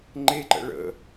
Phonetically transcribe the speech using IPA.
ŋ͡ǃ e ǃ ə̰ ɭ ə̰

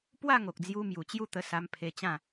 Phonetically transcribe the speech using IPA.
p w a˥˧ ŋ o˨ k̚ d͡z j u˧ m j u˨˩ t͡ɕ j u˦ t̪ ə˧ s a˧ m pʰ e˧ t͡ɕ ã˥˧

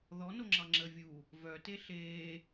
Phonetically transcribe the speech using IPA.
ð ɔ n o ŋ͡ǁ ɑ ŋ͡ǁ əː vʲ u | v œ t e ɬ eː

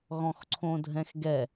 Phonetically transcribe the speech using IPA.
ɣ ɔ̃ x ǀʰ õ dʱ ɛ̃ x ɡ ɛ

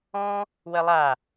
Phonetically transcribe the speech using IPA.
ɔ̃ | w ə lˠ a

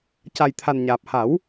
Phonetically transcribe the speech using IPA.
c a˨˩ j t̪ʰ a˨˩ n ɲ aː˨˩ p̚ h a˨˩˦ w

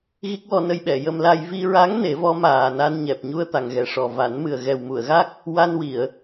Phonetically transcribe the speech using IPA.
ɣ i˦˥ k̚ w ɔ˧ n ə˧ j ɓ ɛ˨˩˨ j ə˧ m l a˧ j v i˧ ɹ a˧˥ ŋ n e˨˩˦ v ɔ˧˥ m aː˨˩ n a˧ n ɲ ɛ˨˩ p̚ ɲ u˧ ə̯ t̪ a˨˩ ŋ ɣ ɛ˨˩ ʂ ɔ˨˩ v a˨˩˦ n m ɨ˨˩ ə̯ ɣ ɛ˨˩ w m u˨˩˨ ə̯ ɣ a˦˥ k̚ | w a˧ n w i˨˩˨ ə̯

